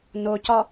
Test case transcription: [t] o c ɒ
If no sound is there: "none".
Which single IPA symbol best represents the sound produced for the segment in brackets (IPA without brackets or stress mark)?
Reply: n